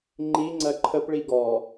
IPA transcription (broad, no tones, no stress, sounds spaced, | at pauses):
ŋ͡ǃ i ŋ͡ǀ ɜ ǃʰ ə p ɭ i ɡ ɔ